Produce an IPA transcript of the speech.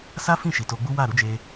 s a˦ f ĩ˦˨ ʃ i˨ t o˧ ɡ͡b u˦ w a˦˨ ɾ u˨˦ d͡ʒ e˧

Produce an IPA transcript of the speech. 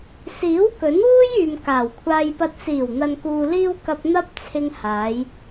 s iː˨˥ w k ɵ˨˥ n w uː˥ j yː˨ m k aː˨˩ w kʷʰ aː˧ j p ɐ˧ t̚ s iː˨˩ w n̪ ɐ˨ n k uː˨ l iː˧ w k ɐ˧ p̚ n̪ ɐ˥ p̚ t͡sʰ ɪ˧ ŋ h aː˨˧ j

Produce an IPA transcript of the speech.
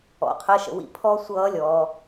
ɔ̰˧ qʰ ə˧˥˧ ʃ ə̰˧ w ḭ˧˥˧ pʰ ɔ˦˥ sʷ ʌː˦˥ lʲ ɔː˧

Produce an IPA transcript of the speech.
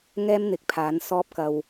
ŋ ɛː˥ m n̪ ɪ˨˥ k̚ pʰ aː˨˥ n s ɔː˥ p̚ k ɐ˧ w

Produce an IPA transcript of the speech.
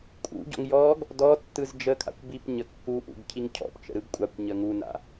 kʼ ṵ ɟ ɔ̰ ŋ j ɔ ɡ | d ɔ tː ɯ z d͡ʒ ə kʰ a̰ kʷ b i p ɲ ə kː u ʔ ṵ ɡ cʰ i ŋ cʰ ɔ̰ p t͡ʃ ə̰ ɾ ɯ ɡ kʷʼ a kʷ ɲ ə ŋ u n a̰

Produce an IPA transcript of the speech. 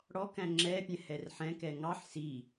ɽ ɔ k æ̃ ŋ͡ǁ ɛ pʲ ɛ̃ h ɛ r ħ ɛ̃ k ɛ ŋ ɑ ħ s i

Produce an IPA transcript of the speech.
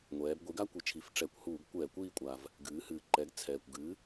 ŋʷ ɛː˩˧ b ɡʷ i˩˥ ɡ a˥ kʷ i˩˧ t͡ʃʰ i˩˥ f ʈ͡ʂ ɛ˧˩˧ kʷ h uː˧˩˧ ɡ kʷ ɛː˧˩˧ kʷ iː˦˨ kʷʼ a˩ v | ɡ ɨː˩˧ h ɨː˩ ǃ ɛ˩˥ ɡ t͡sʰ ɛː˩ kʷ ɡ ɨ˩˥

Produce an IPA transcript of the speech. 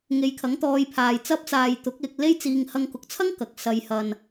ŋ e˨˧ j kʰ ɐ˨˥ ŋ t̪ ɔː˧ j pʰ aː˧ j t͡s ɐ˥ p̚ t͡s aː˧ j t̪ ʊ˨˥ k̚ l ɪ˨ k̚ l e˥ j t͡s iː˧ ŋ h ɐ˧ ŋ k ʊ˨˥ k̚ t͡sʰ ɐ˥ ŋ k ɐ˨ k̚ s ɐ˨ j h ɐ˨ n

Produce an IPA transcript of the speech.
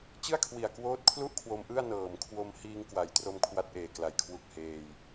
t͡ɕ ɯ˥˩ a̯ kʰ w i˨˩ a̯ k w oː˦˥ t̚ kʰ l u˥˩ ʔ kʰ w o˧ m ʔ ɯ˥˩ a̯ n ɤː˨˩ m kʰ w o˧ m h iː˧ ŋ k w a˩˦ j t r o˧ m kʰ w a˦˥ t̚ ʔ eː˨˩ k l a˨˩ j kʰ w u˨˩ k̚ h eː˧ j

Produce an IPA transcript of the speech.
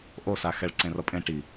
ʔ o s a x ɛ ɭ ǀ ẽ r ʌ pʼ ẽ ʈ i

